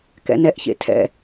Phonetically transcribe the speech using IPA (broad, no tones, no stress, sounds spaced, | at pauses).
k ɛ̰ n ɛ ʔ ç ḛ tʰ ɛ̰